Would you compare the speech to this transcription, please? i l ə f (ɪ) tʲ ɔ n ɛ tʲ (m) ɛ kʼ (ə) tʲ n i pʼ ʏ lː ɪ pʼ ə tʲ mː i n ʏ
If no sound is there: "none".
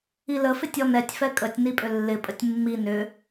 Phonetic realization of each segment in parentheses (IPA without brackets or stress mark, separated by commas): ɪ, f, ə